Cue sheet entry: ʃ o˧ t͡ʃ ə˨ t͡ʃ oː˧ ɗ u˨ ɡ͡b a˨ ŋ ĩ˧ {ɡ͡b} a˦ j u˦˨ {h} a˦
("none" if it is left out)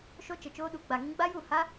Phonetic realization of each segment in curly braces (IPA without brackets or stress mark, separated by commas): ɡ͡b, h